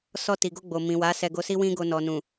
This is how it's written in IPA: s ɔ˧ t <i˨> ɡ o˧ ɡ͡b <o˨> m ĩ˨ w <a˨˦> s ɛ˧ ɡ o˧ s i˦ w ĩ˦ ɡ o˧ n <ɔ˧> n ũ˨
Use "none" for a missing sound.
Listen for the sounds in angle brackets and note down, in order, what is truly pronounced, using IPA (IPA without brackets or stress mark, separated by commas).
i˨, o˨, a˨˦, ɔ˨